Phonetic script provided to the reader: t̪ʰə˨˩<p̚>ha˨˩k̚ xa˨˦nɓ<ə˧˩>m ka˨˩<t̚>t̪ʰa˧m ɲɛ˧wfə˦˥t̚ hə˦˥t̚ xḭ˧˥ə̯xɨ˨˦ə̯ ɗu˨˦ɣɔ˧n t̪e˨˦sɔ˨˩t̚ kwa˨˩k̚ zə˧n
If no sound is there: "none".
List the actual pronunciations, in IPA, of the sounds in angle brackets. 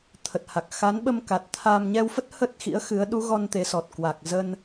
t̚, ə˧, t̚

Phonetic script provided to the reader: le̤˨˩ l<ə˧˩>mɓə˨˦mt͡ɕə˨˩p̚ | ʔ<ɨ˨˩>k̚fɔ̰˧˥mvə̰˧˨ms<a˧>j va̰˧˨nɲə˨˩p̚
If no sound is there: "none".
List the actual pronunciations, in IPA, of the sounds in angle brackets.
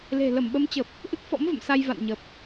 ə˧˩, ɨ˦˥, a˧

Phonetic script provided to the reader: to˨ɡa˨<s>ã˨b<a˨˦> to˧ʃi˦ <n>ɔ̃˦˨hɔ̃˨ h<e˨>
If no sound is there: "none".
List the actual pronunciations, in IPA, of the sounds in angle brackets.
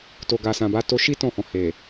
s, a˨˦, t, e˨

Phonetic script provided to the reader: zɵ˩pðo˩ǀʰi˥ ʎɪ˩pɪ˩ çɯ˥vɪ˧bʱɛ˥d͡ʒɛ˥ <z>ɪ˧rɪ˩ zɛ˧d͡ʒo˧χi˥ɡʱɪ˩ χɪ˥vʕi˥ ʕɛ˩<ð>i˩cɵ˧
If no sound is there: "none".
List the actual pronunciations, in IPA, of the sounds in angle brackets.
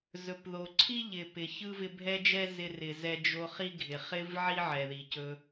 z, ð

